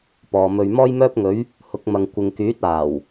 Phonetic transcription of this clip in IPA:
p ɔː˨ m ɵ˧ ɥ m ɔː˥ j m œː˥ p̚ ŋ ɵ˨˥ ɥ | h ʊ˨˥ k̚ m ɐ˨ ŋ kʷ ɪ˨ ŋ k yː˨˥ t̚ aː˨˩ w

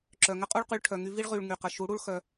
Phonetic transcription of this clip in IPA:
ǁ œ˨ ŋ ə˦ qʼ u˦ ɭ q y˧ ɭ ʈʰ œ˨ ŋ y˧ v i˦ ɭ ʁ y˨ ɭ ŋ y˨ q ə˨ ʃ u˨˦ ɽ u˦ ɭ x œ˧

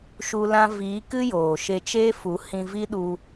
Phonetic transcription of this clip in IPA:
ʃ u˦ l ã˦ v iː˨˦ k ɨ˦ j oː˨ ʃ e˧ t͡ʃ eː˦ f u˨˦ h ĩ˧ v i˦ ɗ u˧

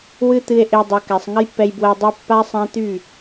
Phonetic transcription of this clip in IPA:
w ɨ˦ t̪ ɨ˧ e̯ ʔ e˧ dˤ u˨ k ɛ˨ sˤ ŋ ə˦ j pː ɛ˧ j b w ə˧ e̯ dˤ ɛ˧ pː a˦ sˤ ã˦ t̪ y˦˨

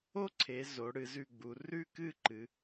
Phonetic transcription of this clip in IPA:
o˥˧ ǀʰ e˩˧ z o˩˧ ɽ ɨ˩˧ z ʉ˧˩ ɡ͡b u˩˧ r ʉ˥˧ k ɨ˥˧ ǃ ɨ˩˧

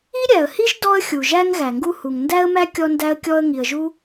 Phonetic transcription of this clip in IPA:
i˥ ɾʲ æ˩ ə̯ h i˥ ʒ d ɔ˥ ə̯ xʲ u˩ ʒ æ˥ ŋ ɣ æ˩ ŋ ɡ u˥ h u˩ ŋ n d æ˥ ə̯ m æ˥ kʲ ɔ˥ n d æ˥ ə̯ kʲ ɔ˥ ə̯ ŋ i˩ ə̯ ʒ u˥

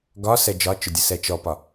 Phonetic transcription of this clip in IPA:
ɡ ɒ s ɛ d͡ʒ ɒ t͡ʃ ʊ dʲ ə s ɛ t͡ʃ ɔ p ɒ

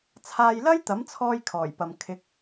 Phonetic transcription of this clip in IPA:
t͡sʰ aː˧ j l ɐ˥ j t̪ ɐ˨˥ m t͡sʰ ɔː˧ j kʰ ɔː˨˩ j p ɐ˨ m kʰ ɪ˨˥ k̚

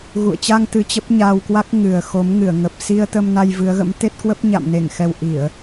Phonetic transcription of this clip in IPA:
ɣ ṵ˧˨ ə̯ t͡ɕ a˧ ŋ t̪ ɨ˧ t͡ɕ ə˦˥ p̚ ɲ aː˧ w k w a˦˥ k̚ ŋ ɨ˨˩ ə̯ x o˨˦ m ŋ ɨ˧˩ ə̯ ŋ ə˨˩ p̚ s i˧ ə̯ t̪ ə˧ m n a˧ j v ɨ˨˦ ə̯ ɣ ə̰˧˥ m t̪ e˦˥ t̚ k w ə˦˥ p̚ ɲ a̰˧˨ m n e˧˩ ŋ x ɛ˨˩ w ʔ i˧˩˨ ə̯

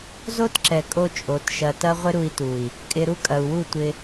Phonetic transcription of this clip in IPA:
z o˦ t ǁ ɛ˨ kʼ o˦ t͡ʃʼ o˨˦ t ʃ ɐ˧ t ɐ˦ ʁʷ ɪ˦ ɾ u˧ i̯ t u˨ i̯ | kʼ ɪ˧ ɾ u˦ kʼ ɐ˨ u̯ w u˦˨ tʷ ɪ˧

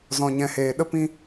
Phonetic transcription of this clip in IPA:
z ɔ̃˨ ɲ ɛ̃˨ h eː˨ ɗ ə˦ p ĩ˦

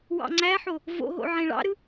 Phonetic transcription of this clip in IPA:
w ɑ̰ ŋ͡ǀ æ ħ o | v o̰ ɦ o̰ ʕ ẽ ɭ ɑ̰ ɾ ɯ

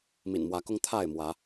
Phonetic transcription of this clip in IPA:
m ḭ˨˩ n m w ä˨˦ k ʊ˦ ŋ t̪ʰ a˥˨ ɪ̯ m w ä˨˦

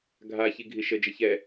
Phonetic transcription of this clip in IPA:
ɡʱ a ç i ɡʱ i ʃ ə d͡ʒ ə ç ɛ

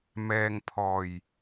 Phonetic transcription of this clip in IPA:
m ɛː˨ ŋ pʰ ɔː˨˩ j

